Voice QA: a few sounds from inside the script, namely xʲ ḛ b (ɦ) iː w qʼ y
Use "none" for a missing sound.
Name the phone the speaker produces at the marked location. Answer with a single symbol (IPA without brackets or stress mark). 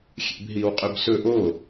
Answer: ɦ